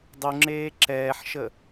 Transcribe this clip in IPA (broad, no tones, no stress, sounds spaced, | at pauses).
dˤ u ŋ͡ǁ eː ǁ ɛː ħ ʃ ə